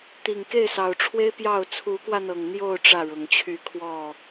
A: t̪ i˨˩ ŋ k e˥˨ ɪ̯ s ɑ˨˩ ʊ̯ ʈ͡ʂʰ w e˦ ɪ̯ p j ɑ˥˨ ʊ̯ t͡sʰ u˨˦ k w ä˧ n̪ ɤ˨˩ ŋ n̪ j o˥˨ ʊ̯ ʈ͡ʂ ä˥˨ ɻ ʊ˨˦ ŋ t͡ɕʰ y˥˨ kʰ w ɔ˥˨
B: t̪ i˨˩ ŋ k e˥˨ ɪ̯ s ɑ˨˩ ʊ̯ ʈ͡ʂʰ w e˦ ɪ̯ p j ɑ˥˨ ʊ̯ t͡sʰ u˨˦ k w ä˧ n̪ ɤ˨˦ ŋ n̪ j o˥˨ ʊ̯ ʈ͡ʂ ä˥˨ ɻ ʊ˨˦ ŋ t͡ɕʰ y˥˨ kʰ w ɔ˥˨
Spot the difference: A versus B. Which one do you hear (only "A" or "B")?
A